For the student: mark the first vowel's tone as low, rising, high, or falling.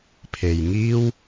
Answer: low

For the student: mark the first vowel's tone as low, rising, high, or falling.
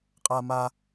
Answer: high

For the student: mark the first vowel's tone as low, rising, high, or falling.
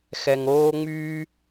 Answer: low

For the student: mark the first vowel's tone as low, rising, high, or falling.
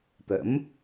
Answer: rising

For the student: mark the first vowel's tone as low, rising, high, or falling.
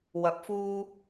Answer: rising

